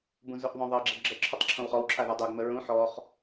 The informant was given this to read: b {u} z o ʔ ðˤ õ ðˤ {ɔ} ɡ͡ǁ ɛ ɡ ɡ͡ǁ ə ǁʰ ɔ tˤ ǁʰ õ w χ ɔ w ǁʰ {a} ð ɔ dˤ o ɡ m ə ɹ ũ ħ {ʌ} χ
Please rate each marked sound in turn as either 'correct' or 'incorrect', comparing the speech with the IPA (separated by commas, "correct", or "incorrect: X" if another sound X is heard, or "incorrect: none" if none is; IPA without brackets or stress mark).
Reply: incorrect: ũ, incorrect: ɤ, correct, incorrect: ɔ